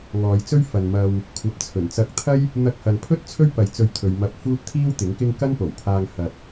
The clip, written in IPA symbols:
ŋ ɔː˨˧ j t͡s ɵ˥ ɥ f ɐ˨ n m ɐ˨ w | kʷʰ ɐ˨ p̚ t͡sʰ ɵ˨˩ n t͡s ɐ˧ k̚ t̪ʰ ɐ˥ j | n̪ ɐ˧ k̚ h ɐ˨ n pʰ ɵ˥ t̚ t͡sʰ ɵ˥ ɥ p ɐ˨˧ j t͡s ɵ˧ ɥ t̪ʰ ɵ˨˧ ɥ m ɐ˧ p̚ f uː˥ t̚ t̪ʰ iː˥ w t̪ ɪ˨˥ ŋ k ɪ˥ ŋ k ɐ˥ n p o˨˩ w pʰ aː˧ ŋ h ɐ˨ t̚

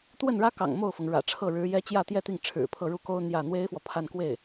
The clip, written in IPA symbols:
t̪ w ə˥˩ n ɻ ä˥ k ɑ̰˨˩ ŋ m o˥˩ ʊ̯ f ɤ˩ ŋ ɻ ä̰˨˩ ʈ͡ʂʰ ɤ˥˩ ɻ ɻ̩˧˥ j ɛ˥ t͡ɕ j ä˥˧ t̪ j ɛ˥˧ t̪ i˥˩ ŋ ʈ͡ʂʰ ɻ̩˨˩ pʰ ɤ˥˧ ɻ u˥˩ k o˥ ʊ̯ n̪ j ä˥˩ n̪ w e˥ ɪ̯ f w ɔ˨ pʰ a˥˧ n k w e˥˩ ɪ̯

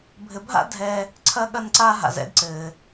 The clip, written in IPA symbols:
bʱ ɘ˧ bʱ a̰˥ dʱ ɛ˧ | ǀʰ ɐ˥ ɠ ɐ˥ n ǀ a˥ ɦ a̰˧ z ɛ̰˥ d ǀ ɘː˧

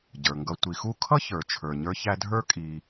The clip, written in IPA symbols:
ɟ ə˞˩ ŋ ɡ ʌ˨ tʷ i˩ x u˦ kʰ ʌ˥ ç ə˞˩ t͡ʃʰ ə˞˩ ɲ ə˞˦ ç æ˦ dʱ ə˞˥ kʼ i˨

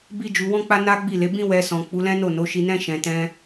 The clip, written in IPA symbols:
b i˦ d͡ʒ u˧ w ɔ̃˦ k͡p a˦ n a˦ ɡ͡b i˦˨ l e˨˦ b ĩ˦ w ɛ˧ s ɔ̃˨ k͡p u˨˦ l ɛ̃˦ n o˦˨ n o˨˦ ʃ i˧ n ɛ̃˦ ʃ ɛ̃˧ t ɛ̃˧

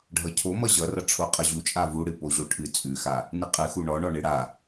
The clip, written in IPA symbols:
ɖʱ ʌ cʰ o m ʌ ʑ ʌ r ʌ ʈ͡ʂʰ o qʼ ʌ ʑ u t͡ʃʼ a v u ɽ ɨ p o ʑ o ʈʰ ɨ t͡sʼ ʉ x a | n ɨ qʼ ɨ x u ɳ ɔ ɳ ɔ ɳ ɨ ɽ a

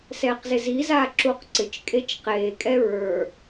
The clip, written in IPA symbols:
s ɛː q z ɪ z i z aː ǁ u q ǀ ɪ t͡ʃ kʼ e t͡ʃ q eː kʼ ɛ ɹ ə˞

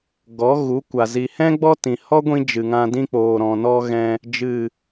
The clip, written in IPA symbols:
ɡ ɔ˨˦ ɣ u˨˦ kʷ a˨ z i˨ h ɛ̃˦ ɡ͡b ɔ˦ t ĩ˨ h ɔ˦ ɡʷ ĩ˧ d͡ʒ ɨ˨ ŋ ã˧ d ĩ˦ k͡p oː˨ ɾ ɔ̃˨ n ɔ˧ ɣ ɛ̃˧ | d͡ʒ ɨ˦˨

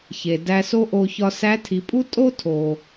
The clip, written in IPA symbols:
ç e˩ d æ˧ s o˥ ʔ o˧ ç ɒ˧ s æ˧˥ tʰ i˩˧ pʼ u˥ tʼ o˥ tʰ o˩

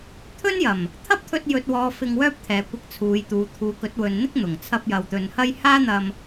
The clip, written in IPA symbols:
t̪ʰ ɵ˥ n j ɐ˨˩ m | t̪ʰ ɐ˥ p̚ t̪ʰ ɵ˧ t̚ j ɵ˨ t̚ w ɔː˨ f ɪ˧ ŋ w œː˥ p̚ t̪ʰ ɛː˨˧ kʷ ɪ˧ k̚ t͡sʰ uː˨˧ j t̪ uː˨˧ t̪ʰ uː˨˧ k ɵ˨˥ t̚ w ɵ˨ n n̪ ɪ˥ k̚ n̪ ʊ˨˩ ŋ t͡sʰ ɐ˧ p̚ j ɐ˨ w t̪ ɵ˨ n h ɐ˥ j h aː˥ n̪ ɐ˧ m

